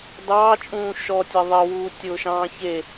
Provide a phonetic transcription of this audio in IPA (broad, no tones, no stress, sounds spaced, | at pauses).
d ɑː t͡ʃʼ ũː ʃ ɔ tʲ e ðˤ ɘ w uː tʲ ʊː ʃ ɑ̃ː ç e